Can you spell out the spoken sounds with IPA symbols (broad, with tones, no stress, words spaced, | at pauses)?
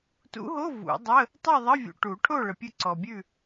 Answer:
tṵ˧˥ɦo˧˥˧ vṵ˨˩˦dˤə˧˥˧ | tˤu˥˨ðˤə˧˥˧vʲṵ˨ ʈu˨˩˦ʈʰo˥˨ ɭə˨pʲʉ˥˨ǀɔ˨bʲʉ˥˨